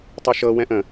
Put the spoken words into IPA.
tˤ u ʃ ɤ w ɛ̃ ʔ ə̃

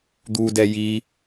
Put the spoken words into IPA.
d̪ u d ɛ j i

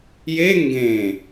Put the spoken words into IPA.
j e ŋ ɡ ẽ

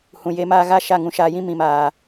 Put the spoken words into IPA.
h ũ˨ j e˧ m aː˧ ɣ a˦˨ ʃ a˦˨ ŋ ũ˧ ʃ aː˧ j ĩ˦ m ĩ˨ m aː˨

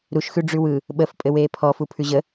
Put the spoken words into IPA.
ɾ u ʃ x ʉ ɖ͡ʐ ʉ w ɯ | ɓ ə f pʼ ɘ w eː pʰ ɔ f u pʰ ʉ ʑ ə

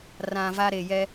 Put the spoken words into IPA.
r ã˨ v a˦ ɾ e˨ j ɛ˦

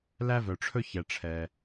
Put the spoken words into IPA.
l æ˧ v œ˩ ʈ͡ʂʰ ɵ˧ ç ɛ˩ ʈ͡ʂʰ ɛ˩

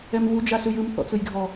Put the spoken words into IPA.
ɛ m v u d͡ʒ a ɬ ɯ j ɯ m θ ɔ̰ t͡s ɯ j ɡʱ ɔ

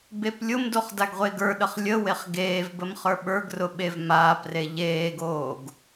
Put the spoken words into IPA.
b e p lʲ ʊ m d o χ d a ɡ ʁʷ e ɡ ə˞ ɗ ə χ lʲ ə w e χ ɡ eː v b ə m χ ə˞ ɓ ə˞ ɡ r ʊ ɓ e v m aː p r e ʎ eː ɡ oː ɡ

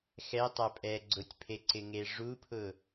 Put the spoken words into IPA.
x ɛ tˤ a pʼ ɛ ɡ͡ǀ ʊ tʲ pʰ e ǀ ɪ ŋ e ʐ u pʰ ʊ

